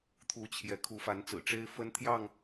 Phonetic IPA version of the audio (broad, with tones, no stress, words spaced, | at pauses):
t̪ʰu˨˦ t͡ɕʰjɛ˨˦ kʰu˨˦fa˨˦nt͡sɹ̩˨˩ ʈ͡ʂe˦ɪ̯fə˦nt̪ʰjɑ˥˨ŋ